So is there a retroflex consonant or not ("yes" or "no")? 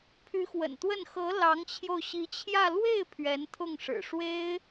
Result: yes